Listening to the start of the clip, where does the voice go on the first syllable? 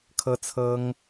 high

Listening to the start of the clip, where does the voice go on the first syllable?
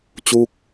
falling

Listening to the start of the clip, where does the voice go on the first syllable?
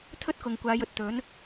high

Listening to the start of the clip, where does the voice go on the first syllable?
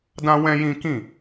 high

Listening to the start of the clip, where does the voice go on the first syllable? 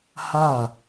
falling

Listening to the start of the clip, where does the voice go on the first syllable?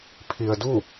low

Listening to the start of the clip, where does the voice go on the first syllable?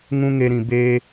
high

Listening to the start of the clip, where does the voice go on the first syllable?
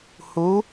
rising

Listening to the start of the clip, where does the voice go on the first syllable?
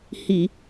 low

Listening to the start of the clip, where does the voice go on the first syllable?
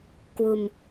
low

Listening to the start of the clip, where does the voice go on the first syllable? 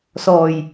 low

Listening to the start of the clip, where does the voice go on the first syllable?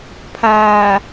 low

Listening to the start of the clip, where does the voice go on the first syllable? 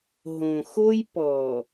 low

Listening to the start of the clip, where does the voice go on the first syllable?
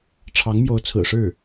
rising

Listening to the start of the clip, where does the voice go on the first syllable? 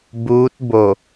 rising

